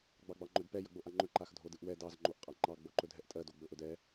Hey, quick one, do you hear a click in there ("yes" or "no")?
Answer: yes